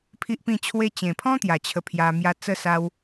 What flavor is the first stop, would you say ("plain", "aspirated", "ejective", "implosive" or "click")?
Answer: aspirated